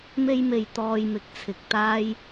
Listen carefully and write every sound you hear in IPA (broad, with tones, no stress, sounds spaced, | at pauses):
m e˥ j m e˧ j t̪ ɔː˧ j m ɪ˨˥ k̚ t͡sʰ ɪ˨ k̚ t̪ aː˥ j